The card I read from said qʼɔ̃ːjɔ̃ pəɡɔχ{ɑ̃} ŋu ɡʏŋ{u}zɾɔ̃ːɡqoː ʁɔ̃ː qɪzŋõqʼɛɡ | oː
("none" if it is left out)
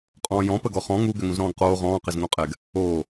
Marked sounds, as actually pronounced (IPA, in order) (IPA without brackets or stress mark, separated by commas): ɔ̃, ũ